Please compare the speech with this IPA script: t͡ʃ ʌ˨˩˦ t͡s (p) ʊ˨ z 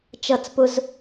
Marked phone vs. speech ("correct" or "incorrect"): correct